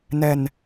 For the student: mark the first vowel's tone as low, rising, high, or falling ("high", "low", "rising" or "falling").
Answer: low